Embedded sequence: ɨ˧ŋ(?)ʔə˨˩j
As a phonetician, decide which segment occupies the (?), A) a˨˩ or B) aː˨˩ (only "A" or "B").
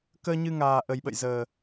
B